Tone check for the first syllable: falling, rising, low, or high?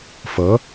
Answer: rising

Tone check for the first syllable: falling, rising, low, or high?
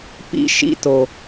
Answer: high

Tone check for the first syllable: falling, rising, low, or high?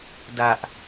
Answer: low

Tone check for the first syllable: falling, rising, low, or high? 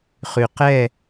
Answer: low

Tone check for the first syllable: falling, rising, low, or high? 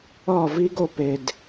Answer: falling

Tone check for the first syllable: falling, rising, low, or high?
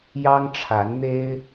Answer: high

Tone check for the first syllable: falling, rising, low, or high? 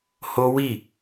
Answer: high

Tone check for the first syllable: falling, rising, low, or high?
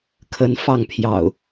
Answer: rising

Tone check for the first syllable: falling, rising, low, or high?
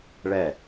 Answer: falling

